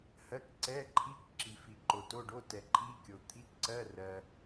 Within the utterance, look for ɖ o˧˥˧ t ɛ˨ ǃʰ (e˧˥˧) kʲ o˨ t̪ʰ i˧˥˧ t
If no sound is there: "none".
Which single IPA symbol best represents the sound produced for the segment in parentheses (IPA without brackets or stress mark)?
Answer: i˧˥˧